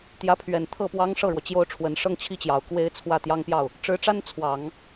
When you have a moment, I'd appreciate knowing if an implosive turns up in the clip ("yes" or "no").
no